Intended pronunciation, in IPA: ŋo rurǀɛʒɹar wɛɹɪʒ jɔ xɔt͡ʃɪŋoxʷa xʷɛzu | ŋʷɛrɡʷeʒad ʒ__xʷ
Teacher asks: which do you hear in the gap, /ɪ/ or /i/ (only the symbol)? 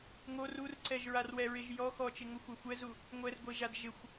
ɪ